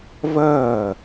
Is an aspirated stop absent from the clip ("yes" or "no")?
yes